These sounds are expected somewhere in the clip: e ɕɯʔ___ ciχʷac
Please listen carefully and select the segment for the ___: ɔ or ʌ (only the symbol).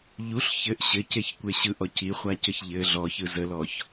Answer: ɔ